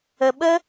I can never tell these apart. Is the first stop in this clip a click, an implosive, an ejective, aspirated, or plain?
implosive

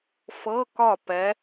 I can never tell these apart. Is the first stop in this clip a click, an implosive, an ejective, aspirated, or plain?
plain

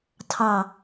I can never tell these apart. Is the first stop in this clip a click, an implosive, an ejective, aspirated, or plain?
aspirated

